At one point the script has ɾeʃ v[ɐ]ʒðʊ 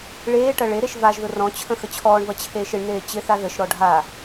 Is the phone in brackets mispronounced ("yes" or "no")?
yes